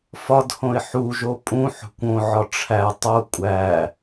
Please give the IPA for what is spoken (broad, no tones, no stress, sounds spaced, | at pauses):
f ɒ d h õ ɪ̯ ħ u ʒ o pʼ ũ ħ o̤ kʷ õ ʕ ɒ ʈ͡ʂʰ æ tˤ o kʷʼ æ